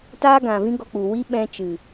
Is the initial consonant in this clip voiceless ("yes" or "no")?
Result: yes